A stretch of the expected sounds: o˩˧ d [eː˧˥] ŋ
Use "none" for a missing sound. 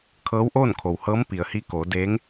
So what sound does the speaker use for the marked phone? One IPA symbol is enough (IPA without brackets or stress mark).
eː˧˥